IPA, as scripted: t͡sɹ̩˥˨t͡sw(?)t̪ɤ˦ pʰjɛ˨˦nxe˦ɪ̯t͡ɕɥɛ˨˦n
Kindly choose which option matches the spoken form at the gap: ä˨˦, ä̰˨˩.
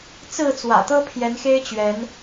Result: ä̰˨˩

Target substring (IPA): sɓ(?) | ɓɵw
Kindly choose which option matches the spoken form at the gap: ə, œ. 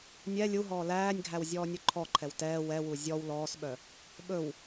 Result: œ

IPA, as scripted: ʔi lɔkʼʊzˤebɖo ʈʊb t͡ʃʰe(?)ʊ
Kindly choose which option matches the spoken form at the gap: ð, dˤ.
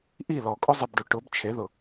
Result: ð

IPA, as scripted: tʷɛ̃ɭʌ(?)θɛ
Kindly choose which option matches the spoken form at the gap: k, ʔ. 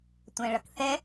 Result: k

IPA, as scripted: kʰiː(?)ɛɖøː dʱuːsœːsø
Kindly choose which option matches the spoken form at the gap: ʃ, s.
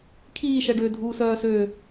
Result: ʃ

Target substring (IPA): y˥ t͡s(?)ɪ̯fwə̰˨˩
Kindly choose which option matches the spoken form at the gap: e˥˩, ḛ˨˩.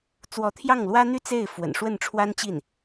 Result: e˥˩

